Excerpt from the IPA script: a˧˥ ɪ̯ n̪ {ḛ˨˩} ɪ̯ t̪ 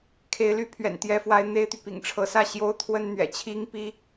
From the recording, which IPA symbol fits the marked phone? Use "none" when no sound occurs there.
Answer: e˥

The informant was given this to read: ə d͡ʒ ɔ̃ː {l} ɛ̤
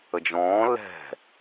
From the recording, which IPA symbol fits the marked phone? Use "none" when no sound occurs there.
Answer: l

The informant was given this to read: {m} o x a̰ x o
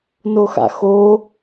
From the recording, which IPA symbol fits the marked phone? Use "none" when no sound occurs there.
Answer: n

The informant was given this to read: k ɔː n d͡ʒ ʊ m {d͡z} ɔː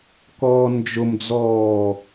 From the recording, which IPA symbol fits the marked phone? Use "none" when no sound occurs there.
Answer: d͡z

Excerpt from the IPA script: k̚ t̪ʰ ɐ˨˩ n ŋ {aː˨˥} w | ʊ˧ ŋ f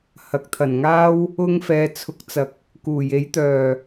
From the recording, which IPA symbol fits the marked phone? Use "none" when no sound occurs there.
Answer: aː˥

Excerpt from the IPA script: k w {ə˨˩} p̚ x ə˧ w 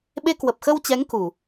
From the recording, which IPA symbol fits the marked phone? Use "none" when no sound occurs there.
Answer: ə˨˩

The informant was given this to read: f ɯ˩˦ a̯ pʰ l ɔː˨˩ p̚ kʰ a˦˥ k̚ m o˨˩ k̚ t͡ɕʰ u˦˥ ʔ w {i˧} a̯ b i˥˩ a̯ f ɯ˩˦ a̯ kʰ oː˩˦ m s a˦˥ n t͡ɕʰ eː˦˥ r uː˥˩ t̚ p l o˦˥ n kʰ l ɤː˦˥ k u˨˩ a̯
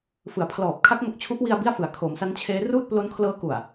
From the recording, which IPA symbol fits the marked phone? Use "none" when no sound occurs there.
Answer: i˧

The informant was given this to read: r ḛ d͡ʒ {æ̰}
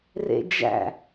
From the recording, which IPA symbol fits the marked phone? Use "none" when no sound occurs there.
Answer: æ̰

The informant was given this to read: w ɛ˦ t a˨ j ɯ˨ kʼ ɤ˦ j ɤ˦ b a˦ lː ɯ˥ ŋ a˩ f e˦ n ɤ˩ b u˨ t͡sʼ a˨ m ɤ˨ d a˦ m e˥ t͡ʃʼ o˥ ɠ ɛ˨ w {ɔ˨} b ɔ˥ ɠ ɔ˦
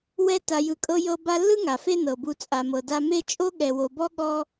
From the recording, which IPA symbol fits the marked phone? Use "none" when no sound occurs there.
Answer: o˨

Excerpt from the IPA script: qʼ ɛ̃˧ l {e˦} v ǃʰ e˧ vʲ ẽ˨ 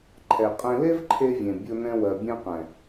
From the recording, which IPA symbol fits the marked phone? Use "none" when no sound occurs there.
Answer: e˦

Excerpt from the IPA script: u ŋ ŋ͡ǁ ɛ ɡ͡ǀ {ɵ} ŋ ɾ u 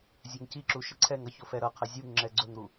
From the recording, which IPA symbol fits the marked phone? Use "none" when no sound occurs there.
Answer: ɵ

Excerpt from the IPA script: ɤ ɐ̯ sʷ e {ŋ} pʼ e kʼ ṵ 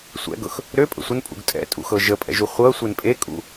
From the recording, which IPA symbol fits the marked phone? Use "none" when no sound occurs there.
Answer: n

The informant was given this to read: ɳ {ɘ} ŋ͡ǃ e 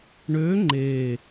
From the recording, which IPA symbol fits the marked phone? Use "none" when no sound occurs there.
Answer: ø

